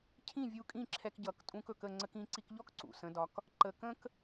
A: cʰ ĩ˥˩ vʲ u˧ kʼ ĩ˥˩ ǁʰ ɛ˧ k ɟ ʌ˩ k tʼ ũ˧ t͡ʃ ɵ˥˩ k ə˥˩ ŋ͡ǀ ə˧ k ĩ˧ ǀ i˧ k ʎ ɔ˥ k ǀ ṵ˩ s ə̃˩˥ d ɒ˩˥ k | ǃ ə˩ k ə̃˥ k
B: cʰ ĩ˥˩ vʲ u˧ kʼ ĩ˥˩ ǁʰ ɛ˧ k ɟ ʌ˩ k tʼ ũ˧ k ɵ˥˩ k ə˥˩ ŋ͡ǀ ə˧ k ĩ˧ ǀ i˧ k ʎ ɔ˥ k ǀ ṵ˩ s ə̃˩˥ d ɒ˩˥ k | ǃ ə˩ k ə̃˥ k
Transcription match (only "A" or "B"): B